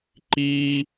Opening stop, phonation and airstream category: click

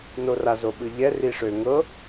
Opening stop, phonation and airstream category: implosive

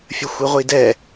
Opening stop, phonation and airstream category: plain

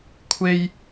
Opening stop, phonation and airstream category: aspirated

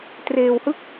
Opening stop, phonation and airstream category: plain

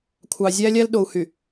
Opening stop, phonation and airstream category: aspirated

